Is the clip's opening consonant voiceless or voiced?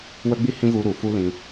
voiced